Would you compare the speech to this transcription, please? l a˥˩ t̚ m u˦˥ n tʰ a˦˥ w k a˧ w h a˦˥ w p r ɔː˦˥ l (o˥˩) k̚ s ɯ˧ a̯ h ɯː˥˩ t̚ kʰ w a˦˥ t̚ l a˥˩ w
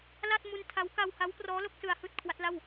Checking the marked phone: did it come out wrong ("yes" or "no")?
no